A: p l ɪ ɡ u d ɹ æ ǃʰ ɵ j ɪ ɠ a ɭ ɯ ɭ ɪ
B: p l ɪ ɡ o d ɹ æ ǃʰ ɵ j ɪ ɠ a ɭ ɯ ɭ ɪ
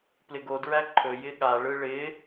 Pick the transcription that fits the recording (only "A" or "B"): B